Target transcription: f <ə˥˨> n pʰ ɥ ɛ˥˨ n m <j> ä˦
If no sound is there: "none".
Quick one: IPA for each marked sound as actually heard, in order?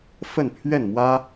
ə˥˨, w

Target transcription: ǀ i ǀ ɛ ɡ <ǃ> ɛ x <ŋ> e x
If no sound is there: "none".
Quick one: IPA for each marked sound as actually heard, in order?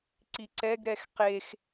ɾ, q

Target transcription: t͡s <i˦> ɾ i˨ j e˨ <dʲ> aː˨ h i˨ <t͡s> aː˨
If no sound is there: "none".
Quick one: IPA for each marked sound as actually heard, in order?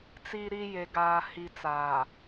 i˨, ɡ, t͡s

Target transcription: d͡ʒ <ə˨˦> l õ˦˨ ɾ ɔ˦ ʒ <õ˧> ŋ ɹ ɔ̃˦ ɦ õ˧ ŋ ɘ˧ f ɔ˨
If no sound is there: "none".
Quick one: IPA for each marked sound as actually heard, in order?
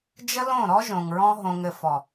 ə˦, õ˨

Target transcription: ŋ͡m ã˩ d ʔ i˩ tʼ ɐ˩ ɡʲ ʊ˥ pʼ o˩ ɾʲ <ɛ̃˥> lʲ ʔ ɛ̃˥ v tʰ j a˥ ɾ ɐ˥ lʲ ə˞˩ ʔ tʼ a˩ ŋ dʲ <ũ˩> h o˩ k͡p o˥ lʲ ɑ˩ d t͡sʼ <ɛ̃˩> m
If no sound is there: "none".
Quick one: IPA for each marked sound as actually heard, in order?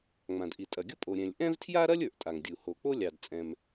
ɛ̃˩, u˩, ɛ̃˩

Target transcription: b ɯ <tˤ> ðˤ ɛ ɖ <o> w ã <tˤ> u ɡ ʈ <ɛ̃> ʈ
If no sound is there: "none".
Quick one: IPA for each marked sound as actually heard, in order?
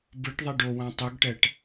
ʈ, o, tˤ, ɛ

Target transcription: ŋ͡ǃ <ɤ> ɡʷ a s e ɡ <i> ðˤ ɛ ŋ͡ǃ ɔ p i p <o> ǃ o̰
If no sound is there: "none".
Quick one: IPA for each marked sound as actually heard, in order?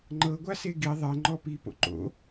ɤ, i, o̰

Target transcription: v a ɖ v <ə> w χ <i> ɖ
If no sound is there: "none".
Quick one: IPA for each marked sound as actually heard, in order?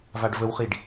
ə, i

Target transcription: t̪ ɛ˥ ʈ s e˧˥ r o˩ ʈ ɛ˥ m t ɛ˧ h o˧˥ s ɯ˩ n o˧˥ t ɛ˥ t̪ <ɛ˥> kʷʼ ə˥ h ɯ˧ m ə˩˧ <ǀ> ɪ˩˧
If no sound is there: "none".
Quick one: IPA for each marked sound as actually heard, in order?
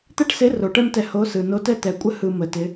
ɛ˩˧, t

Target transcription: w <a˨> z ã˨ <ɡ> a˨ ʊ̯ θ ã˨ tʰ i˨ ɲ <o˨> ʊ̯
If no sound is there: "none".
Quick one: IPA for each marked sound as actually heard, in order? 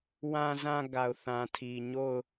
ã˨, ɡ, o˦˨

